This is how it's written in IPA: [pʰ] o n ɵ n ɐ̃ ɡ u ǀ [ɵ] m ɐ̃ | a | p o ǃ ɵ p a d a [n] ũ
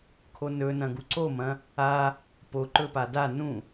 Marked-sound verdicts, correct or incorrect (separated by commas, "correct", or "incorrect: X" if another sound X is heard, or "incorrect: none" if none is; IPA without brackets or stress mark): incorrect: kʰ, incorrect: o, correct